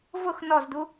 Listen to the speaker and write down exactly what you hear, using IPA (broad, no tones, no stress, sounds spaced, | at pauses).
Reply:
v ʊ x n ɔ z d u